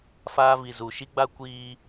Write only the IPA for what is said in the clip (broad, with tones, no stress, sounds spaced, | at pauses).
f aː˦ v i˨ z u˨ ʃ i˦ ɡ͡b a˦ kʷ iː˦